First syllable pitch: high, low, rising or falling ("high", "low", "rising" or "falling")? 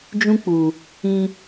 high